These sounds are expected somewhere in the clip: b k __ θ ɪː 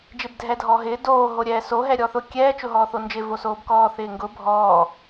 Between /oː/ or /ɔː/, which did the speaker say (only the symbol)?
ɔː